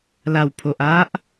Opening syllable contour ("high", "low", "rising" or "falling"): low